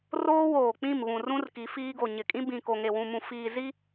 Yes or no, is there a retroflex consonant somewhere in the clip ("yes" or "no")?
no